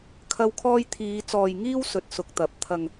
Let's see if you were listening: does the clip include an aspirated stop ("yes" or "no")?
yes